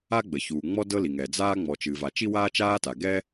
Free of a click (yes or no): yes